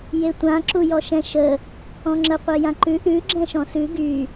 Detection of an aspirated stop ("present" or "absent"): absent